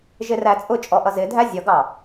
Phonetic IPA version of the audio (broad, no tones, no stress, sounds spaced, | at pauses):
ʒ ɪ r æ t͡sʼ ʊ t͡ʃʼ ɔ ʔ ʌ z ɪ dʱ æ zʲ ʌ ɡ ɑ